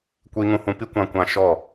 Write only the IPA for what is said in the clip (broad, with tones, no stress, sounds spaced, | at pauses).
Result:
kʷ i˧ ŋ ũ˧ h ũ˧ p i˦ kʷ ã˧ kʷ ã˧ ʃ ɔ˦˨